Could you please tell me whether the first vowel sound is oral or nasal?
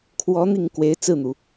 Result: oral